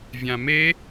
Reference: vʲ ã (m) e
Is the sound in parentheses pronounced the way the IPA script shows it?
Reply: yes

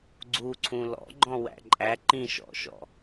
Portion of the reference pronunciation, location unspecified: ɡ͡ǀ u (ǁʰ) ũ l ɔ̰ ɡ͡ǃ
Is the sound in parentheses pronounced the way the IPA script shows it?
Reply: no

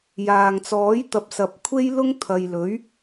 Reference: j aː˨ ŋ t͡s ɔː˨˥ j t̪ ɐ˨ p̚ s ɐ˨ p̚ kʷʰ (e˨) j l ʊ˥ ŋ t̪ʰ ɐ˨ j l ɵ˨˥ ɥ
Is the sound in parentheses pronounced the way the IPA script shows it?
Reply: no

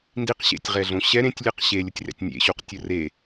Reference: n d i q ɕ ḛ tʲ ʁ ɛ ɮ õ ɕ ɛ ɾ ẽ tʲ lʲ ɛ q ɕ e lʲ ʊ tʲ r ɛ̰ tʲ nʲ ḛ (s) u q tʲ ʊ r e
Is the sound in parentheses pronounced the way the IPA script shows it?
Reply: no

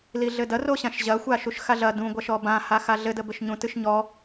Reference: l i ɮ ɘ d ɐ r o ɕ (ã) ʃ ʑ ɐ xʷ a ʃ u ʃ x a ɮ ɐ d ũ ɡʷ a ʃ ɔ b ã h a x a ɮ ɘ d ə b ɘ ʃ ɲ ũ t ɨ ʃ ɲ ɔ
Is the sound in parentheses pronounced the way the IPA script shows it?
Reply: yes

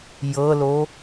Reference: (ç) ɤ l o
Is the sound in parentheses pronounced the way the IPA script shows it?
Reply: no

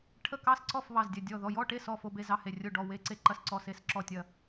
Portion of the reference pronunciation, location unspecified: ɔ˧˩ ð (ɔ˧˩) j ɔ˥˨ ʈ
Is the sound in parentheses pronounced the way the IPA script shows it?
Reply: yes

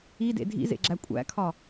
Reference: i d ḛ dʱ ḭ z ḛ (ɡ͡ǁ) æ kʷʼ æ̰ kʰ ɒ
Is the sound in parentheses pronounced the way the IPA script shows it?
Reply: yes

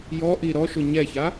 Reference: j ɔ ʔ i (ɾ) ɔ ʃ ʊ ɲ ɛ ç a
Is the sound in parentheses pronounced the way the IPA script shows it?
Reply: yes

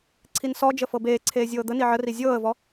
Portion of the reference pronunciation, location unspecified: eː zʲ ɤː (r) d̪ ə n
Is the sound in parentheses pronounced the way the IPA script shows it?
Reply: no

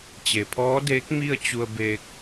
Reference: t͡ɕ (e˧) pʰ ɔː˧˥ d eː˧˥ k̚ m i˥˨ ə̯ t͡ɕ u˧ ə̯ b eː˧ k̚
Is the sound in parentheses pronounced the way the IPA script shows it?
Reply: no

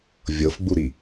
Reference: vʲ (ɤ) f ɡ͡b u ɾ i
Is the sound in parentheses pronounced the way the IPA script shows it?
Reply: yes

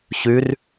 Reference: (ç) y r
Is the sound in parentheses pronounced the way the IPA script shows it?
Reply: yes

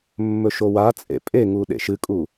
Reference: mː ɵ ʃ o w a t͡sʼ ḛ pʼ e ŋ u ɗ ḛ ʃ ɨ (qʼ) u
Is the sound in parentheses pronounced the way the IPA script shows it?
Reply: no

